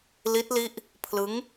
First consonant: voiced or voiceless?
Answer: voiced